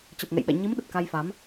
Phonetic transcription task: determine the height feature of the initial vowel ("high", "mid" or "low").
mid